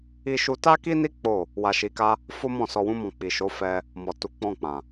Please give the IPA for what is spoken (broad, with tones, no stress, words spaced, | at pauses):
i˧ʃu˧ta˦ ki˦ni˦ k͡po˦˨ | wa˧ʃi˧ka˦ | fo˦mɔ̃˦˨ sɔ˧wũ˦mɔ̃˧ k͡pi˨ʃo˨˦ fɛ˧ | mɔ˨tu˨˦k͡pɔ̃˦˨k͡pã˨